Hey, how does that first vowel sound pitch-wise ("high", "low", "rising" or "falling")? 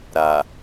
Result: low